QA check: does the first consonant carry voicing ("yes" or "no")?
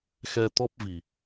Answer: no